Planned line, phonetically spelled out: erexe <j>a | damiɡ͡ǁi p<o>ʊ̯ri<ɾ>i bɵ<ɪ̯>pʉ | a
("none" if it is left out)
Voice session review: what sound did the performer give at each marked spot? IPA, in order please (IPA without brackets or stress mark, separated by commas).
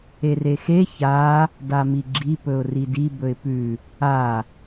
ç, ɵ, d, ɪ̯